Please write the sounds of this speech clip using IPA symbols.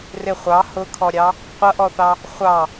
r ɪ χʷ ɑ h ʊ kʰ ɔ ɾʲ ɑ | qʷ ʌ ʔ ɔ θ ɑ | χʷ ɑ

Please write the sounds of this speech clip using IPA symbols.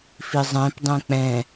f i zˤ ɛ̃ p dˤ ɛ̃ k͡p ɛ̃

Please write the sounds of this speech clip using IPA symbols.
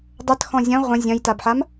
dˤ ɐ t x ɔ̃ zʲ ɐ̃ ʁʷ ɐ̃ zʲ ɐ̃ j t a b ħ a m

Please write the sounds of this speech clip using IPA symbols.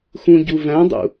x ũ ɟ u v æ̃ dˤ ṵ

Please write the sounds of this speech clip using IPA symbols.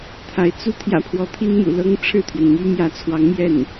t̪ʰ a˧˥ ɪ̯ t͡s u˥ t̪ʰ j ä̰˨˩ pʰ w ɔ˧˥ t̪ʰ i˥ n m ṵ˨˩ l ɤ˥ ŋ ʈ͡ʂʰ ɻ̩˥˩ t̪ʰ ɥ ɛ˩ n m y˥ m j ä˧˥ t͡sʰ w ɑ˧˥ ŋ m j ɛ˥˩ n

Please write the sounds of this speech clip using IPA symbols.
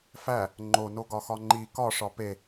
f æ | ŋ͡ǃ o n o ɡ ɒ x ɒ ŋ͡ǃ i k ɒ ʂ ɒ p e

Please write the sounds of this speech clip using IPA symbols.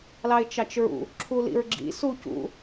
l ɑ ɪ̯ t͡ʃ ɑ t͡ʃ ɹ ṵ | ǁʰ u l ḭ ɹ ɡ͡ǁ ḭ s u c ṵ

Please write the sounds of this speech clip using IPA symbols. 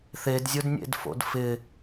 θ e d zʲ ʊ d nʲ ḛ d f o̰ d f ɪ

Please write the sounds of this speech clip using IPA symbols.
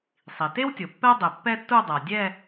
sˤ i˩ t e˥ w tʲ o˩ pː ɛ˥ dˤ e˩ pː ɛ˥ tː u˥˧ dˤ a˩ dʲ ɛ˥˧

